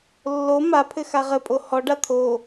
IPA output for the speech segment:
lː o m a pʰ ɘ x a ʁ ɘ pʼ o h ɔ ɖ a t̪ʰ o

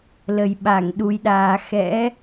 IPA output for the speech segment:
l ə˨˩ j ɓ a˧˩ ŋ ɗ u˨˦ j ɗ aː˧ x ɛ̰˧˥

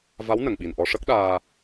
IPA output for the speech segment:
v a˧˥ w n ə˨˩˨ ŋ ɓ i˨˩ n ʔ ɔ˧ ʂ ə˦˥ k̚ ɗ aː˧

